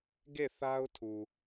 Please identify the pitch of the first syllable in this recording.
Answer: falling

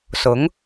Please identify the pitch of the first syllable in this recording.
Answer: rising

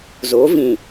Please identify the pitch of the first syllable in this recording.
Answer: rising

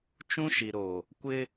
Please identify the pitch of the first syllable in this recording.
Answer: high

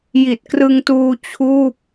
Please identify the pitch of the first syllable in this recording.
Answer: low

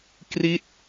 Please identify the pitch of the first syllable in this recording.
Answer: falling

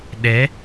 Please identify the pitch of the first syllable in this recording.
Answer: rising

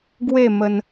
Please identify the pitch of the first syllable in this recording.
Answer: falling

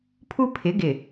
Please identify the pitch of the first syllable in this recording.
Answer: high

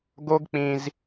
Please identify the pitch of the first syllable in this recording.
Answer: high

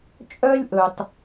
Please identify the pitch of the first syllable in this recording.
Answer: high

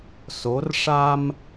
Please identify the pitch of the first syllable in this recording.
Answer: rising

